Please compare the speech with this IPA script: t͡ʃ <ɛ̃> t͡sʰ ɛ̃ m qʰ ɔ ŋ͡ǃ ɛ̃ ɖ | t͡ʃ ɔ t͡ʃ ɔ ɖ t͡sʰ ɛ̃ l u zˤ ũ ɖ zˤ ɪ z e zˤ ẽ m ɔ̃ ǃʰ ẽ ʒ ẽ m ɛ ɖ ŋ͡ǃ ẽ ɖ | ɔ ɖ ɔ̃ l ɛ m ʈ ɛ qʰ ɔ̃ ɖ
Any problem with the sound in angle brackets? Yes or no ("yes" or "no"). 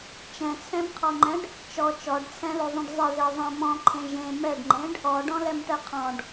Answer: no